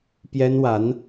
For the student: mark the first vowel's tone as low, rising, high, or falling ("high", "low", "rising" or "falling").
high